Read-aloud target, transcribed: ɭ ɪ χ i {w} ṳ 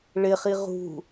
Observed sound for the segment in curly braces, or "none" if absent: ʁ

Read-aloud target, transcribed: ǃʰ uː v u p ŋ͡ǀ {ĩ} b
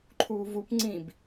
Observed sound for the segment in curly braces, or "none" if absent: ĩ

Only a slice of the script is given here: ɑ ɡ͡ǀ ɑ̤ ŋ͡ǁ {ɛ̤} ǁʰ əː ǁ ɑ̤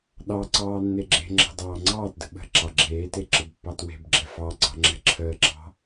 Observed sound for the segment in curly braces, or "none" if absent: ɛ̤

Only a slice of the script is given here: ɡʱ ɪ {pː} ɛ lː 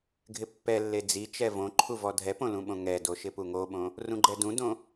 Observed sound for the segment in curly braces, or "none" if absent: pː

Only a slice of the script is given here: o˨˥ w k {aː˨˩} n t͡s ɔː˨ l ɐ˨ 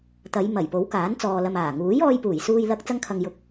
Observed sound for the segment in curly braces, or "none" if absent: aː˨˥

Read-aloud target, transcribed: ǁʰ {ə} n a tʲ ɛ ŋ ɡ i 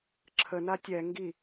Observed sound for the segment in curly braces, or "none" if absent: ə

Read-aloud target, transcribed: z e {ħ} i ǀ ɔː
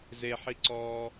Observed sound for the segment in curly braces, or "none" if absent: ħ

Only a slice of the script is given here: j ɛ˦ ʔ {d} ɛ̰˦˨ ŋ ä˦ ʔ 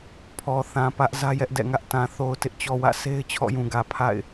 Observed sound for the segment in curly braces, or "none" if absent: d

